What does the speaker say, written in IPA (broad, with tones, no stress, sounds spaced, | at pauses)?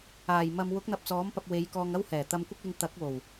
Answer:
aː˨˩ j m ɐ˧ m w ʊ˨˥ k̚ n̪ ɐ˧ p̚ t͡s ɔː˨˥ m p ɐ˧ p̚ w e˨˧ j k ɔː˧ ŋ ɐ˥ w h ɛː˨˩ t̪ ɐ˧ m kʷ ɪ˥ k̚ l ɪ˧ ŋ t̪ ɐ˨˥ k̚ w o˨˩ w